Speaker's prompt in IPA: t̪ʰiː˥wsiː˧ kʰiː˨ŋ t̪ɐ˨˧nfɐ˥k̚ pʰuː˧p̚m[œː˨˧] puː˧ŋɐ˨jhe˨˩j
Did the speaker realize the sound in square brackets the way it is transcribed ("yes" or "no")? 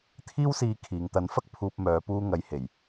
yes